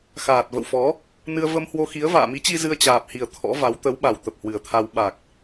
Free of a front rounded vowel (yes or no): yes